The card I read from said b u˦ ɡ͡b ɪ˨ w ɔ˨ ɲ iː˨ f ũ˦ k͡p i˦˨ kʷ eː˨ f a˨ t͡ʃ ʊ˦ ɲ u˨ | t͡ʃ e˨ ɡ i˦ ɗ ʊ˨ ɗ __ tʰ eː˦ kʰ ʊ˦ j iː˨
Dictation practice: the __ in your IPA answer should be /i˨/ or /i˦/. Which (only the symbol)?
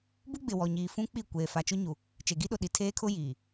i˨